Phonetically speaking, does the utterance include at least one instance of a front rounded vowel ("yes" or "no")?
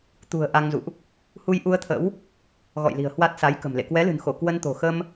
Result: no